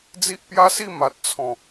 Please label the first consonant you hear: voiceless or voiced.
voiced